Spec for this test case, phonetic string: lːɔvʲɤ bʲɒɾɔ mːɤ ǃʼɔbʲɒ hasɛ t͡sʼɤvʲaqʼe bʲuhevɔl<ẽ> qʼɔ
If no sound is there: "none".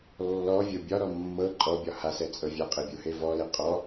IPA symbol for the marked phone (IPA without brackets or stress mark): e